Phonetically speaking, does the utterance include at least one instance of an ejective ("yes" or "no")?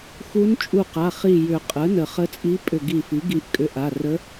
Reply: yes